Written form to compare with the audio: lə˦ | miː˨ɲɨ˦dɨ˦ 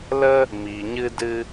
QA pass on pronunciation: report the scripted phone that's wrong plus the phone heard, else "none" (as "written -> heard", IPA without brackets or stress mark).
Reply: none